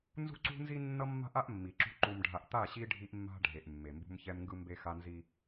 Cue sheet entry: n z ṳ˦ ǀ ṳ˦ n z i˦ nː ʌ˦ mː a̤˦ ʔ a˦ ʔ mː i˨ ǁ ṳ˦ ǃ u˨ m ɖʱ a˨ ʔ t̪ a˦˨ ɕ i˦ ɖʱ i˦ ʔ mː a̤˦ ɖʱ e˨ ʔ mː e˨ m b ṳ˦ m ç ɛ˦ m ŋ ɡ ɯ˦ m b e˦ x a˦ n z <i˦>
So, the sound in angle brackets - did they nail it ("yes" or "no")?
yes